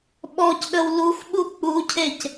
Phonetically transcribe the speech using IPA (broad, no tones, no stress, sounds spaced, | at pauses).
ɓ ɔ c ɗ ə w l u x ɓ u k͡p u cʰ e c